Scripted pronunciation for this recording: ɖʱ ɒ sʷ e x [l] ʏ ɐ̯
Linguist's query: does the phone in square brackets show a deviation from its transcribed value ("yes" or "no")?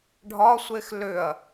no